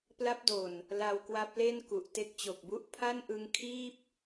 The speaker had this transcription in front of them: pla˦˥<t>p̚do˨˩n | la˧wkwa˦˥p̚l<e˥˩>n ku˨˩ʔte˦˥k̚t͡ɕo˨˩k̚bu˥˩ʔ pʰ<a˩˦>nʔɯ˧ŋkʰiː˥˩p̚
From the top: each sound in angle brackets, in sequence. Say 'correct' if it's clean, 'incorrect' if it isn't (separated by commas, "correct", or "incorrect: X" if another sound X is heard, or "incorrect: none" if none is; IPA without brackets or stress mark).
incorrect: none, correct, incorrect: a˥˩